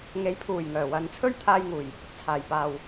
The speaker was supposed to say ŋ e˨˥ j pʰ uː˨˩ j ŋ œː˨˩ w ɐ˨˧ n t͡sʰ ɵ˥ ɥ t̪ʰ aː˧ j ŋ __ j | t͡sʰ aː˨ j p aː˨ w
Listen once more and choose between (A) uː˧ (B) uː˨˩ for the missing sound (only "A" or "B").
B